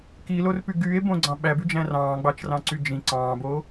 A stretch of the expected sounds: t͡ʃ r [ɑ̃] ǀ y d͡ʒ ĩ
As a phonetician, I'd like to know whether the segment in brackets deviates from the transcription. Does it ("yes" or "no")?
no